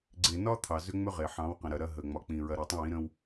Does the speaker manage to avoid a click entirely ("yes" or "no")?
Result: no